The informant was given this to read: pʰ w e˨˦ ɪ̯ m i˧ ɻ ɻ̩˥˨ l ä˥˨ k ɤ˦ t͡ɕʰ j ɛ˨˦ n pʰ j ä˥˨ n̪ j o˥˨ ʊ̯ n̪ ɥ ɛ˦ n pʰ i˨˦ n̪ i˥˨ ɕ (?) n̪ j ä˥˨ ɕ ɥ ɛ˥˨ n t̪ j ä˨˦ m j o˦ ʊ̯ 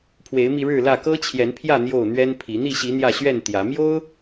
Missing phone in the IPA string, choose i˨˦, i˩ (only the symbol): i˨˦